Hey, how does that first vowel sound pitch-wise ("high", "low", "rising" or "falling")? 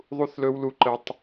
high